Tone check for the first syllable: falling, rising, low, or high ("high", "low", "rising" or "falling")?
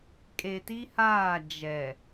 low